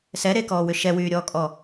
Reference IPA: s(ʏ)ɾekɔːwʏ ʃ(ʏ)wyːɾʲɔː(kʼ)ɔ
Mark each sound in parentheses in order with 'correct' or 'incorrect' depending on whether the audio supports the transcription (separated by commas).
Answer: incorrect, incorrect, correct